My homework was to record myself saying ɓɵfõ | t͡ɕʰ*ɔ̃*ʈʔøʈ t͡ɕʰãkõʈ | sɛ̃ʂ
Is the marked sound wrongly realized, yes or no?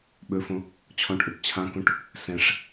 no